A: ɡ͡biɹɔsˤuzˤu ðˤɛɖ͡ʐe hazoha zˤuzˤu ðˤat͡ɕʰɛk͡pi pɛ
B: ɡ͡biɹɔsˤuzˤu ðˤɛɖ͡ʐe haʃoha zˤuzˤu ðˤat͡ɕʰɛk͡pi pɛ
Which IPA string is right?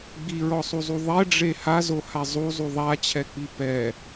A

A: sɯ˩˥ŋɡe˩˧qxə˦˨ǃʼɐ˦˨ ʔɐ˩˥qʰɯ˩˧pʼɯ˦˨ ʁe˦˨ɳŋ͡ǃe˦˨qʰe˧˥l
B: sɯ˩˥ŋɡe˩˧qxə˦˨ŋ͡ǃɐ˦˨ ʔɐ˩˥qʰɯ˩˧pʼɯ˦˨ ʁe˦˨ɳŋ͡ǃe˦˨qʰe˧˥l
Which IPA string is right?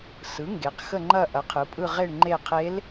B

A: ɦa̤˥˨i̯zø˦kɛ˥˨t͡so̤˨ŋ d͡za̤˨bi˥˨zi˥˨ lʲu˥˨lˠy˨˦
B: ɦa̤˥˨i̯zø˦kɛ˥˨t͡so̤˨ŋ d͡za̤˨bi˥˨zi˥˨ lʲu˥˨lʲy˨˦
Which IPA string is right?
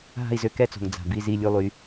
A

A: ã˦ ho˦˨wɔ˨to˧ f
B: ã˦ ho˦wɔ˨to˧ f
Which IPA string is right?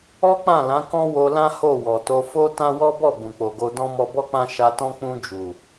A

